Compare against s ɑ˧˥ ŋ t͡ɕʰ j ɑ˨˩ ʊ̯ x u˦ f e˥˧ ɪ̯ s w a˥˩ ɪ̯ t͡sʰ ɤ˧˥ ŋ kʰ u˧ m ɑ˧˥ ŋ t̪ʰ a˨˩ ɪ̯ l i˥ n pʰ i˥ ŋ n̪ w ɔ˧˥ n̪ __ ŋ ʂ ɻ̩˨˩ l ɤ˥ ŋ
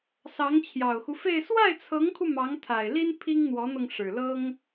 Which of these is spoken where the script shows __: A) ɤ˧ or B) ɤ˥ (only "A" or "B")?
A